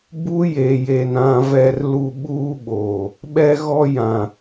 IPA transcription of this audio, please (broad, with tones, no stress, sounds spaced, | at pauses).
b u˦ j e˨ j e˨ n ã˨ v ɛ˨ r l u˨ ɓ uː˦ ɓ oː˨ | ɓ ɛ˦ ɣ ɔ˦ j ã˨